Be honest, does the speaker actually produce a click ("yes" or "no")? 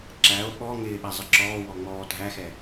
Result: yes